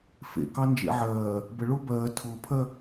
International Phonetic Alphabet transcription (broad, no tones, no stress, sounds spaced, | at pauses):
f ḛ k ɑ n d͡ʒ ḛ ʕ ɜː | b ə ɭ ʊː b ɜː tʰ ʊː pʰ ɜ